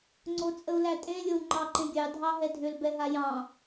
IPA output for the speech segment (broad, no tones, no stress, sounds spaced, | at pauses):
ŋ͡ǀ o t͡sʼ ə u̯ l æ tʼ ẽ lʲ o u̯ ŋ͡ǃ ɑ ǃ ẽ ɡʲ ɑ dʱ ɑ ɦ ɛ dʱ ʏ l b ɛ ɦ a j ɑ̃